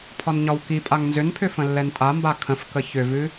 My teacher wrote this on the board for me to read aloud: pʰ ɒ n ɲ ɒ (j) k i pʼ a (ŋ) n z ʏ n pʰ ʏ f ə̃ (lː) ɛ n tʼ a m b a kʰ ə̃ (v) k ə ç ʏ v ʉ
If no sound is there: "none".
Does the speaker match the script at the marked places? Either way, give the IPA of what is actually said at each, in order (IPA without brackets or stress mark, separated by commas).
w, ŋ, lː, f